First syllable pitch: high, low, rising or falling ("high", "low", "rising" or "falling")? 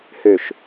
low